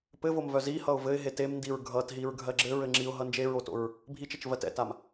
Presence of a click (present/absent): present